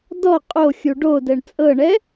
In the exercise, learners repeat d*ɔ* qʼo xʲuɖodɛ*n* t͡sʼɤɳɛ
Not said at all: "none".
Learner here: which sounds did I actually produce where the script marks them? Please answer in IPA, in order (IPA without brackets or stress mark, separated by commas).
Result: ɔ, ɳ